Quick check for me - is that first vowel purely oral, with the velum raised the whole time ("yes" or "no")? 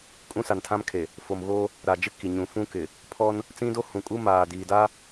no